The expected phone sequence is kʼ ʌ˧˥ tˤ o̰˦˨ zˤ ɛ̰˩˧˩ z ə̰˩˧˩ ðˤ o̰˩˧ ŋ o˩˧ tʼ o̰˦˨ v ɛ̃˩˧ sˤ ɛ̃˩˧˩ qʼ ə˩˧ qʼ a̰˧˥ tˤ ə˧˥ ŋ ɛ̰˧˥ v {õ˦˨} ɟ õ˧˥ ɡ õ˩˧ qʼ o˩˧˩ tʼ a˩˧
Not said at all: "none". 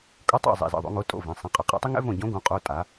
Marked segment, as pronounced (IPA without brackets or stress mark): õ˦˨